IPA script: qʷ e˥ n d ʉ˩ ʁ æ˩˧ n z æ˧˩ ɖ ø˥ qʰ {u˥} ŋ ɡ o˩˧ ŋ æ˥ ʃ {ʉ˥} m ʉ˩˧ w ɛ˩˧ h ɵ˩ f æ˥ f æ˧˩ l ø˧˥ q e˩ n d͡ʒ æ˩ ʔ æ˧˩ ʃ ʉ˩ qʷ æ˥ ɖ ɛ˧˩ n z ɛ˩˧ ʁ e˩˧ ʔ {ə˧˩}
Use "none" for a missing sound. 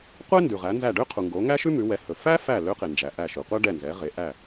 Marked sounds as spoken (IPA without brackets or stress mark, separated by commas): u˩, ʉ˥, æ˧˩